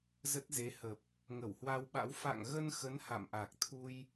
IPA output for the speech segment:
z ə˦˥ t̚ z e˨˦ h ə˨˩ p̚ | ŋ ə˧˩ w h w a˧ w ɓ a̰˧˥ w f a̰˧˨ ŋ ɣ ə˧ n x ə˨˦ n h a̰˧˨ m ʔ a˨˩ k̚ t̪ʰ u˧ j

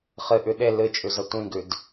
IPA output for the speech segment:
χ ɨ ʔ ʉ ɗ e l ɨ t͡ʃʼ ʉ z ɐ tʷ ĩ ɡ ʉ d

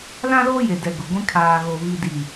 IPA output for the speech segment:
l ã˦ l oː˦ j e˨ d ɛ˨ ɡ ʊ˨ ɡʷ ĩ˦ kʰ aː˨ ɣ o˨ β i˨ d i˨

